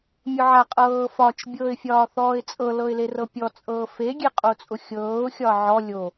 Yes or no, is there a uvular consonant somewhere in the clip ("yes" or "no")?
yes